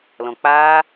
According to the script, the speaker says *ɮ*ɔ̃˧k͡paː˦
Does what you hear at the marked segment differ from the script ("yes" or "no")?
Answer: yes